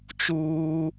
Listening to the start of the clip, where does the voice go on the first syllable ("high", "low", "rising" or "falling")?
high